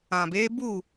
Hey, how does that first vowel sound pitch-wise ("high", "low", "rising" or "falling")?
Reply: low